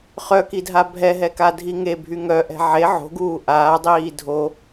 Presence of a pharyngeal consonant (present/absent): present